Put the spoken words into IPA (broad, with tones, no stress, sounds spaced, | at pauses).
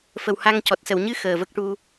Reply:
f ə˨˩ w h a˧ ŋ c ɔ˨˩ t̚ s ə˨˩˨ w ɲ ɨ˧ x əː˨˩ v ə˦˥ k̚ ʈ u˧